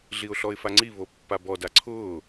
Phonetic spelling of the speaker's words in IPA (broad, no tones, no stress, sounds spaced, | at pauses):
ɮ i ʊ̯ ɬ ɔ ɪ̯ f a ŋ͡ǀ i β o pː a b ɔ d a ǀʰ ʊː